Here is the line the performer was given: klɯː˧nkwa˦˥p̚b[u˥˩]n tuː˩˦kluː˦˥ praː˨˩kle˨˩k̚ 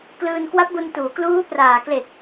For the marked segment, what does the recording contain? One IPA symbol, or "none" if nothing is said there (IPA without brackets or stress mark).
u˧